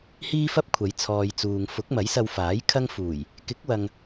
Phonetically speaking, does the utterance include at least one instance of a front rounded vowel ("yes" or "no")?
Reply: no